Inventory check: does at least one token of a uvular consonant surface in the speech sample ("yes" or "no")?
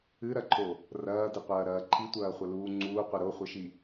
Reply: yes